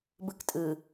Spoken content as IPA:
b ɯ k tʼ ɯ

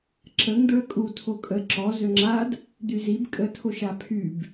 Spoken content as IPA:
ǁ ə ŋ d ɹ ə kʼ u tʰ o kʼ ə ǁ ɔ z ø ŋ͡ǁ a d | d̪ y z i b kʼ ə tʰ o ʃ a pʰ y b

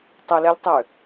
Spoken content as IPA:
tˤ ə l ɛ lʲ tˤ ø

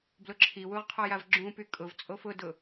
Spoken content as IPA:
b l ʊ ǁʰ i w u ʁ qʰ ɔ j a v ɡ͡ǁ ũ p y kʼ ʊ v t͡sʼ o f ʊ d ʊ

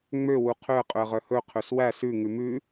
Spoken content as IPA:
ŋ͡m ø w u qʰ ø ə̯ qʼ ɵ ə̯ ʁ œ h ɵ qʰ ø s w æ s ʉ ŋ ʉ m ʉ

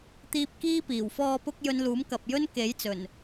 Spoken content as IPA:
t̪ iː˧ p̚ k iː˥ p iː˨˩ w f ɔː˨ p ʊ˧ k̚ j ɵ˧ n l uː˨˥ m k ɐ˨ p̚ j ɵ˥ n k e˨˥ j t͡s ɵ˨˩ n

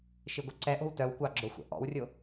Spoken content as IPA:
ʃ i ɡʷ e ǀ ɛ ʔ o̤ w t œ w kʷ ɑ ɡ͡ǁ o xʷ ɛ̰ ʔ ɔ̰ w rʲ o

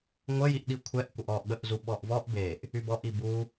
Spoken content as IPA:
ŋʷ ə j i ʔ ɗ i kʷʰ ɛ ʔ kʷ ə ʔ ɔ ʔ ɠ ə ʔ z u ɓ ɔ ʔ v ɔ ʔ b e ʔ | y b ɔ ʔ i b u

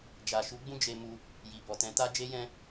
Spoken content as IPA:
d͡ʒ a˨ ʃ u˨˦ ɡ͡b ũ˦ d͡ʒ e˧ m u˧ | j i˨ b ɔ˨ t ɛ̃˨˦ t a˦ d͡ʒ e˦ j ɛ̃˦

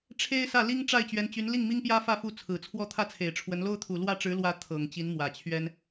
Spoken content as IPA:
ʈ͡ʂʰ e˥ ɪ̯ s ä˥˩ l i˥ ŋ ʈ͡ʂ a˥˩ ɪ̯ t͡ɕ ɥ ɛ˧˥ n t͡ɕ y˧˥ n l i˥˩ ŋ m i˥ ŋ p j ä˥ f ä˥˧ f u˥˩ t͡sʰ ɹ̩˨˩ t͡sʰ w ɔ˥ t̪ʰ ä˥ t͡sʰ e˨˩ ɪ̯ ʈ͡ʂʰ w ə˧˥ n l o˥ ʊ̯ t̪ʰ u˨˩ l w ä˥˩ ʈ͡ʂ ɻ̩˧˥ l w ä˧˥ t̪ʰ ɤ˨˩ ŋ t͡ɕ i˧˥ n m w ä˨˩ t͡ɕʰ ɥ ɛ˥ n

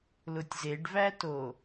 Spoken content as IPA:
l ʊ tʲ z e ɖ v æ t o

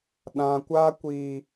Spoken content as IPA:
ɗ ã˨ kʷ a˦ kʷ i˨

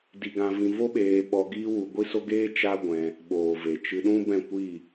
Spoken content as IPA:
d i˧ ɡ ã˧ v ĩ˧ v o˦ ɓ eː˧ ɓ ɔ˧ ɡ iː˦ w u˧ ɡʷ i˦ s o˦ ɡ eː˦ t͡ʃ a˦ ɡʷ ɛ̃˧ | ɓ oː˨ v e˨ t͡ʃ ɨ˧ ɗ ũ˦ b ɛ̃˦˨ kʷ i˦˨

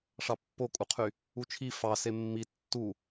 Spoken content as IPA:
ʂ ɑ pː o kʼ u qʰ y | u t͡ʃʰ i f ɑ s e mː i tː u

